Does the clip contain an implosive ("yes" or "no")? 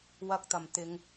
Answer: no